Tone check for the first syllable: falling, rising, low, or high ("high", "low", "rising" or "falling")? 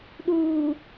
low